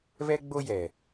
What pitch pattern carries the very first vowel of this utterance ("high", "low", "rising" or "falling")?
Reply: high